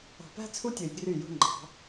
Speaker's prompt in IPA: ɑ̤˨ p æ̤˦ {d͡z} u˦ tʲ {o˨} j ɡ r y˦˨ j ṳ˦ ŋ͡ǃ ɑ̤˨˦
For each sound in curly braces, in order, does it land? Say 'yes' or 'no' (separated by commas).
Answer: no, yes